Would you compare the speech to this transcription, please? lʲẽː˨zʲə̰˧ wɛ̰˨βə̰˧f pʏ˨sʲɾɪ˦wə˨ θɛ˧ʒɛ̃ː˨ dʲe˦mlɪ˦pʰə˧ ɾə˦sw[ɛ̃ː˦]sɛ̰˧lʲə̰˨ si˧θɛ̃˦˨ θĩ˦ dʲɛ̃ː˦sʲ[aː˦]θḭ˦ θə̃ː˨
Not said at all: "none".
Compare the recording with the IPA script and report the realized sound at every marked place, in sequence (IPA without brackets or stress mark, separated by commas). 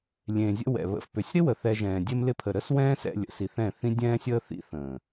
ɛ̃ː˦, əː˦